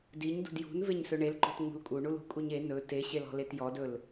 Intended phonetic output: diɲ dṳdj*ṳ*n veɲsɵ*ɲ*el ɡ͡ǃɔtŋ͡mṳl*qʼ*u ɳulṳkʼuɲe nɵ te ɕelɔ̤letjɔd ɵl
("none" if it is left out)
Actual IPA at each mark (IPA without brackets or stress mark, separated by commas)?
ṳ, ɳ, kʼ